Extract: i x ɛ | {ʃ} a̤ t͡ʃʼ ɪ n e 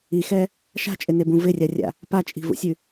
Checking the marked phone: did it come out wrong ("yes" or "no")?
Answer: no